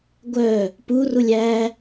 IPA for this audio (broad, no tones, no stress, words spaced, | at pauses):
ɡʷœ | purulʲ æ